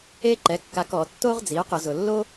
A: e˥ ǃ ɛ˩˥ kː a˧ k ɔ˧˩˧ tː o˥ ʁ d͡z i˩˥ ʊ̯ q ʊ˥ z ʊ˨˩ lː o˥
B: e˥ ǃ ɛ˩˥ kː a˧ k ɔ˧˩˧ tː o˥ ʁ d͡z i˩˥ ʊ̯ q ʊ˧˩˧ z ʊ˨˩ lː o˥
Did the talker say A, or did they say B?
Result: B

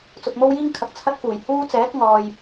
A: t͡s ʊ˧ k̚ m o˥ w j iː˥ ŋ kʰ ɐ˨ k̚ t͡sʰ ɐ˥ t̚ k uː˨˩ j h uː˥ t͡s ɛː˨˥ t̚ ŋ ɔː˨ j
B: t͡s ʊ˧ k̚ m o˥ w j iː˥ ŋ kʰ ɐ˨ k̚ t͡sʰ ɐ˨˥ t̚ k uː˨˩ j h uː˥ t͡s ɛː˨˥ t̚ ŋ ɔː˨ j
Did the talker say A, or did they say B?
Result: A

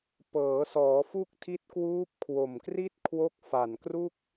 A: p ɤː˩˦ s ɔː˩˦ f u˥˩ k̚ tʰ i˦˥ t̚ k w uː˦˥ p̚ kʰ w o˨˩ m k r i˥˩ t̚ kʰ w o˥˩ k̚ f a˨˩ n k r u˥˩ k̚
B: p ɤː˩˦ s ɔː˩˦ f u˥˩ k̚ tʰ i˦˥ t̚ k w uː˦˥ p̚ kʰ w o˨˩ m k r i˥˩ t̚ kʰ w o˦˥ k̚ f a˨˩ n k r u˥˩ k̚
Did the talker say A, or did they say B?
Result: B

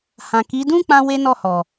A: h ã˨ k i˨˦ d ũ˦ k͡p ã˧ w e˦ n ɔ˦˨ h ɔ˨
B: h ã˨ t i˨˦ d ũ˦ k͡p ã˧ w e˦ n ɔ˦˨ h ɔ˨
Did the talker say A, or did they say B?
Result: A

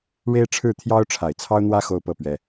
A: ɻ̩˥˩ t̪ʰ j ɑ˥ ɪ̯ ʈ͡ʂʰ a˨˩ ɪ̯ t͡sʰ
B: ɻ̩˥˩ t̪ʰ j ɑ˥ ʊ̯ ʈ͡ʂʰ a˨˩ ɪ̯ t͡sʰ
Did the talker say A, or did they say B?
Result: B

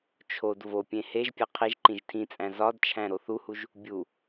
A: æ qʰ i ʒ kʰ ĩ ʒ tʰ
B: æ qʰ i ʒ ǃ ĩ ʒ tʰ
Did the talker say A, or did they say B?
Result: B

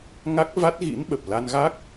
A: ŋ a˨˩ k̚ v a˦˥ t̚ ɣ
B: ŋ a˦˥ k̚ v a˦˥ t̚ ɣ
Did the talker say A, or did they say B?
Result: B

